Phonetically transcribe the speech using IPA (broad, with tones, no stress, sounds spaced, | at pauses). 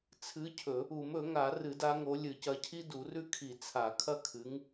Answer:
t͡sʰ ɨ˨˦ cʰ ɵ˨˩˦ | u˨˩˦ m ɵ˨˩˦ ŋ a˨˩˦ r ɨ˨˩˦ d a˨˦ ŋ o˨˦ lʲ ɨ˨˩˦ c ɐ˨˦ cʰ i˦ d u˨˩˦ r ʉ˦ kʰ i˨˩˦ t͡sʰ a˨˩˦ kʰ ɐ˦ kʰ ɨ˨˦ ŋ